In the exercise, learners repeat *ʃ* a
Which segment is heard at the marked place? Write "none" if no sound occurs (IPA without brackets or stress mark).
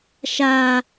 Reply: ʃ